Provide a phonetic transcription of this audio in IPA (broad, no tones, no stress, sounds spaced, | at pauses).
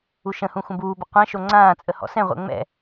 u ʃ ə̃ h ũ xʷ ə̃ b uː b ə qʷ ɛ̃ ʃ o ŋ͡ǀ ãː t͡sʼ ə h ɔ̰ s ɛ̃ ʁʷ ɛ̰ ŋ͡m ɛ̰